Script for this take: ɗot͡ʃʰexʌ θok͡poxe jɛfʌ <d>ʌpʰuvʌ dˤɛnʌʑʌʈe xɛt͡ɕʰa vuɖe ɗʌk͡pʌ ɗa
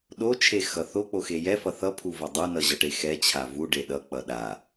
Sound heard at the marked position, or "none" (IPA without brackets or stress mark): θ